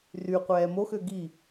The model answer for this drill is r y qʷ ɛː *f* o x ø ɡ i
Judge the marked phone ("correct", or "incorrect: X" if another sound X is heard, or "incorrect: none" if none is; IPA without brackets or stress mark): incorrect: m